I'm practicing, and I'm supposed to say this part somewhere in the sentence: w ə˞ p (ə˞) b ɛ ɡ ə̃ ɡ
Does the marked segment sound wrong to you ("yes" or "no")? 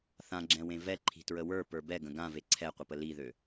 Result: no